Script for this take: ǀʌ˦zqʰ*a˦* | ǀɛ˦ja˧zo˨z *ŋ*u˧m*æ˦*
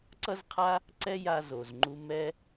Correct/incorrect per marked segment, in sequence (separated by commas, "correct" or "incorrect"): correct, incorrect, incorrect